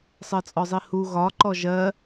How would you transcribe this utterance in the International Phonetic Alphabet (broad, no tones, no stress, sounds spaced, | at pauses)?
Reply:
sˤ ɜ t͡sʼ ɔ zˤ i h u ɣ ɒ ǃ ɔ ʒ ɜ